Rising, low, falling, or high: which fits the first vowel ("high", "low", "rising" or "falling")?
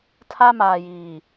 high